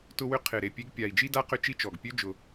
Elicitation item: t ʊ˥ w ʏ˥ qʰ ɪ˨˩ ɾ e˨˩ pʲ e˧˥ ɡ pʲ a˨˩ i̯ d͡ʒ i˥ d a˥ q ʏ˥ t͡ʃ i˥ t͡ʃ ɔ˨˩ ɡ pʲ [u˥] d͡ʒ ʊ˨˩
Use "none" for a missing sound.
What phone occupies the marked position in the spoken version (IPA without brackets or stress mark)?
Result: ø˥